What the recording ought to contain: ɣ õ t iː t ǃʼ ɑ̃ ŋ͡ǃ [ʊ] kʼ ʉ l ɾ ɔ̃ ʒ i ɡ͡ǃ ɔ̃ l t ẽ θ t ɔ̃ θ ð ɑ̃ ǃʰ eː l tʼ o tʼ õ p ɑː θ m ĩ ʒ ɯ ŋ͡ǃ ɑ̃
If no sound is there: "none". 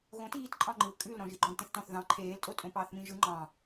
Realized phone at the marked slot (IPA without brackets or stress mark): ɯ